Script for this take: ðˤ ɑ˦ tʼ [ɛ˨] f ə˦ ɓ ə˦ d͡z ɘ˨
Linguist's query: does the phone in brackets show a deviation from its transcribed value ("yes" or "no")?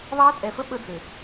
no